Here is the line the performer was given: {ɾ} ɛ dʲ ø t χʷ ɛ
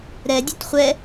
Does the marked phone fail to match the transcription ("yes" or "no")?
no